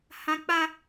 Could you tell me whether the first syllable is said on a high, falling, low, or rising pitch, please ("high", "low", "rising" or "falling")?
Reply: high